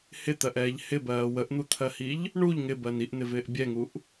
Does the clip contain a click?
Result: no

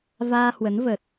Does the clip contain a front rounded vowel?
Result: no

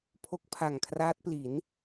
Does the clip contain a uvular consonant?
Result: no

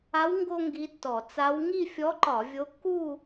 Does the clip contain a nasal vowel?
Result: no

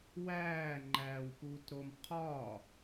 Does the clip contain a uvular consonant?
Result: yes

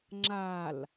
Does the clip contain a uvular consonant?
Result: no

